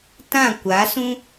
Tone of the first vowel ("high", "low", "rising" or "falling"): falling